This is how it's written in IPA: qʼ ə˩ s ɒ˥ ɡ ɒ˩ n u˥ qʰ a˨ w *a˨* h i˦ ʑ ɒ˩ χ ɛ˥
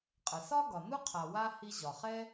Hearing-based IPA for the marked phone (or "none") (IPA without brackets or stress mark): a˥